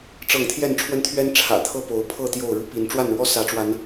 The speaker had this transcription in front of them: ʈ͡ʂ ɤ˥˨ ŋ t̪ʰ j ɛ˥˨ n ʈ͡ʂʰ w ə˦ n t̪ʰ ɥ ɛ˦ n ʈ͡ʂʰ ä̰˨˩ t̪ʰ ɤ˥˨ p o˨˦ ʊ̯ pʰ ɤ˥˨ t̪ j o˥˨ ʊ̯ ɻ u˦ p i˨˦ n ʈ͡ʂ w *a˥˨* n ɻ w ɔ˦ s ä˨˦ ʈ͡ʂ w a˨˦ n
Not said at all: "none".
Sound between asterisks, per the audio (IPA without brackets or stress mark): a˥˨